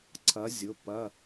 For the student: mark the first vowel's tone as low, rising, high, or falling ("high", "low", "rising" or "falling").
rising